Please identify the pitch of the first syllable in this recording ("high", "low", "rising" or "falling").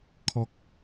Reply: high